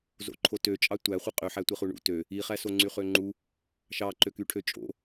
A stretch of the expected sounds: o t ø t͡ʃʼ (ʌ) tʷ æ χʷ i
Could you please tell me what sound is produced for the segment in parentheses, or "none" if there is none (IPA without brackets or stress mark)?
ɑ